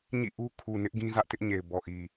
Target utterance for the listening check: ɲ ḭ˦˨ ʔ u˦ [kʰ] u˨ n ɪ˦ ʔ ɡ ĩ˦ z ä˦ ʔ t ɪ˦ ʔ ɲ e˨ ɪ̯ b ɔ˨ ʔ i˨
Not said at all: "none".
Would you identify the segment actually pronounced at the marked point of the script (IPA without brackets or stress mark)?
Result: kʰ